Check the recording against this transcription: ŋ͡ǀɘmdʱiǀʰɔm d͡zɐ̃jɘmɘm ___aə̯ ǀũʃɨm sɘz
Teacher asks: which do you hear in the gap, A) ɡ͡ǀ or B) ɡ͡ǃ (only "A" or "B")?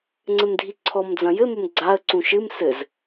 A